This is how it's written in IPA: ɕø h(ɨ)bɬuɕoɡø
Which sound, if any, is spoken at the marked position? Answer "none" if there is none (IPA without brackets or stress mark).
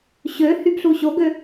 y